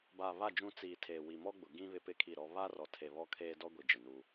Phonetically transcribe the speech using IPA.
baː˨βa˦˨ d͡ʒũ˦ t͡siː˨ tʰeː˨wi˨mɔ˦ɡ͡bʊ˨ ɡĩ˦ βɪ˦pɪ˦kʰi˦˨ɾɔ˦ βa˦rɔ˨tʰe˨ βɔ˦kʰeː˦dɔ˦ ɡʷi˨d͡ʒɪ˨nu˦

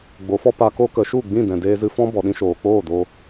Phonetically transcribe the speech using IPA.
ɡ͡bo˨˦fɔ˦ pa˧ko˦kə˨˦ ʃu˦˨ ɡ͡bĩ˦˨dɛ̃˨ deː˧zɨ˧fɔ̃˦ bɔ˨ɗĩ˦ʃoː˨ k͡poː˦˨do˧

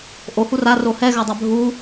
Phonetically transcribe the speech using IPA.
ʔohu raro hɛɣadˤa bʱu

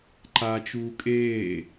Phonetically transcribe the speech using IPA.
ǃat͡ʃuː kʼeː

